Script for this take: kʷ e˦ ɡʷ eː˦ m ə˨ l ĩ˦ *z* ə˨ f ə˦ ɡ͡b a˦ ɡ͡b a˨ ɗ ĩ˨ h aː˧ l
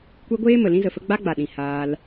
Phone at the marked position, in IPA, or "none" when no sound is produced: z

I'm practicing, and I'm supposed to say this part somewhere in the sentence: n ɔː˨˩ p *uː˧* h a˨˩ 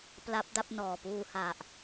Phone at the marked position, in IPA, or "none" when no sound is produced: uː˧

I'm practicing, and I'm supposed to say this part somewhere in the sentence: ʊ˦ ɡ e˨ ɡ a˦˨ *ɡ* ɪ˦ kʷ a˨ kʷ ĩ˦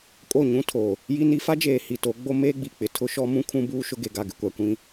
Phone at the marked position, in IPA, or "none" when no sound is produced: ɡ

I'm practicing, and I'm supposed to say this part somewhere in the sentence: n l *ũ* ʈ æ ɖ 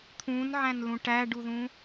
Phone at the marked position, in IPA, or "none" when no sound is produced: ũ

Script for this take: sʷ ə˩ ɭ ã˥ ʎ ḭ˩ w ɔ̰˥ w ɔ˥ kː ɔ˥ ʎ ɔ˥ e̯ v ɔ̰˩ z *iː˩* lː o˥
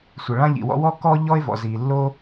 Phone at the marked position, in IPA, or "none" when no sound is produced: iː˩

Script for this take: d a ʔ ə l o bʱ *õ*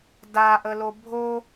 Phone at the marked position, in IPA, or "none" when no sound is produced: o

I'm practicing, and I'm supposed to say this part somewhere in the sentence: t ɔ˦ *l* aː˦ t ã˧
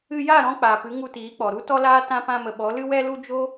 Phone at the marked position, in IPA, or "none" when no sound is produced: l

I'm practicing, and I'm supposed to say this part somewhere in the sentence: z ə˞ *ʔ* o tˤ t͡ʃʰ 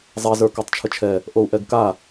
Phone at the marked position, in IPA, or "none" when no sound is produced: k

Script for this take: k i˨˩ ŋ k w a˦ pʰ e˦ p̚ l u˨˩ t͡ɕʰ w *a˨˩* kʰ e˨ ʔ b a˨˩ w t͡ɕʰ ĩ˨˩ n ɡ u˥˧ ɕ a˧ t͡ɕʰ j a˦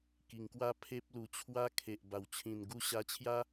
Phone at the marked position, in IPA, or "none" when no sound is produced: a˥˧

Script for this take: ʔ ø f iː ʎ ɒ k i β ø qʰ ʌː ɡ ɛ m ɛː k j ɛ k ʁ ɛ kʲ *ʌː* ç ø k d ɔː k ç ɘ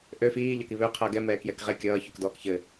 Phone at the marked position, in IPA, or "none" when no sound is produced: ʌː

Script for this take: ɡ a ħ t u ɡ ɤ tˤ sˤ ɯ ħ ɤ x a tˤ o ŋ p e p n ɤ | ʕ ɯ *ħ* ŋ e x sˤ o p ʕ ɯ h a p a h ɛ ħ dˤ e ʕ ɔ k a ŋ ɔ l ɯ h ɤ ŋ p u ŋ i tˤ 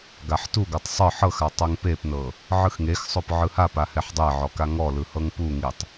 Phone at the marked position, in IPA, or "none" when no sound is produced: x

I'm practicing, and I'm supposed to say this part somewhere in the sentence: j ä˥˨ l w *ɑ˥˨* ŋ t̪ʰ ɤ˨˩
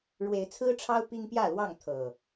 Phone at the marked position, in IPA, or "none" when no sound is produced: ɑ˥˨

